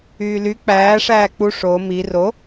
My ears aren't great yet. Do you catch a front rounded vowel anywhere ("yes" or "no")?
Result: yes